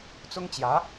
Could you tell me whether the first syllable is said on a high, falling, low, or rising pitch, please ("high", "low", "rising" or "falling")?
high